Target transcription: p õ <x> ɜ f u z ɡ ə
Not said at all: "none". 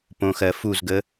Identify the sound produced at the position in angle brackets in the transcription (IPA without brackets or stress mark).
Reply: x